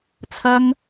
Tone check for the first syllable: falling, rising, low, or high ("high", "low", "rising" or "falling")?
high